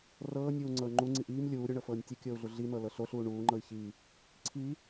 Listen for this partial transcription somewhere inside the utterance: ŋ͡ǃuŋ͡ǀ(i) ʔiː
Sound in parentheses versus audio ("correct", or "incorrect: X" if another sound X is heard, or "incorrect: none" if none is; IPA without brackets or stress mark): correct